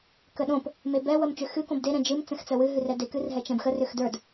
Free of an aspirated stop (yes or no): yes